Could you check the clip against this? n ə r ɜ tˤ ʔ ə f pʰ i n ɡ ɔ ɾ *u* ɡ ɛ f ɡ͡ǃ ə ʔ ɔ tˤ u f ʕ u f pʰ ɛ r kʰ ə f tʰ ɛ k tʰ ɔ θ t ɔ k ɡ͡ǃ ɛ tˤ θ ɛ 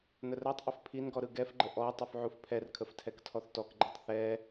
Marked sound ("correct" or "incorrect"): incorrect